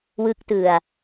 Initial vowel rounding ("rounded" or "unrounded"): unrounded